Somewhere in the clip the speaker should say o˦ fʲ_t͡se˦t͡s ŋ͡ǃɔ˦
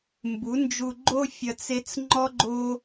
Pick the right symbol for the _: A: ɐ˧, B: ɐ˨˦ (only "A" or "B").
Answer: A